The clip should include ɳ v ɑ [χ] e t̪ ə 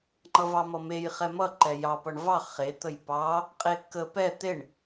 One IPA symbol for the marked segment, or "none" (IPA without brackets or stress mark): χ